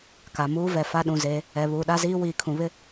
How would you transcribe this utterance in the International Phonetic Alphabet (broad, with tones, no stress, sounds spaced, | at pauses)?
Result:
k a˨ m uː˦ v ɛ˨ f a˦ ɗ ũ˨ z e˨˦ | ɛ˨ β uː˨ ɗ a˦ z iː˦ w iː˨ kʰ ũ˨ β ɪ˦